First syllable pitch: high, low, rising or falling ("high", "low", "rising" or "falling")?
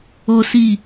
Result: high